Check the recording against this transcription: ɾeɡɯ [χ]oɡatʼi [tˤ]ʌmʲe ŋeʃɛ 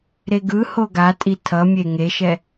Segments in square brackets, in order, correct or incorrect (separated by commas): incorrect, incorrect